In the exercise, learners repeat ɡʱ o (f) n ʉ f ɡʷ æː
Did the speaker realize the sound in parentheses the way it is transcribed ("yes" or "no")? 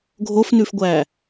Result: yes